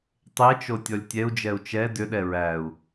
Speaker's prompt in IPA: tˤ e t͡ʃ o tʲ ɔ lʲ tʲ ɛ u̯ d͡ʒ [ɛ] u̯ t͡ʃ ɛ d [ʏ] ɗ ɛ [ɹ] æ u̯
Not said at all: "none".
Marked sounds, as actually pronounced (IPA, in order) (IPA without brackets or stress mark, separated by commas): ɛ, ʏ, ɹ